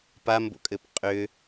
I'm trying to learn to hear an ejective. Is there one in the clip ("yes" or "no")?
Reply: yes